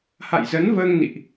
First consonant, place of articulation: glottal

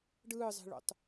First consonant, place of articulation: retroflex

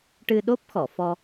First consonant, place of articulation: retroflex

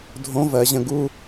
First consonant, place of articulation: alveolar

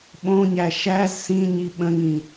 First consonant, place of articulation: labial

